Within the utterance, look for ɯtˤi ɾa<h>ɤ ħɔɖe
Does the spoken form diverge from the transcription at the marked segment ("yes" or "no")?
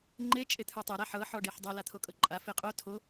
yes